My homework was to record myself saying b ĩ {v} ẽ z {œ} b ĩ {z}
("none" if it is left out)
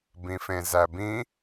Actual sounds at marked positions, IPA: f, æ, none

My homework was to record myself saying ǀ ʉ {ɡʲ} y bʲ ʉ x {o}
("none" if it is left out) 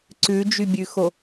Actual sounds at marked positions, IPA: d͡ʒ, o

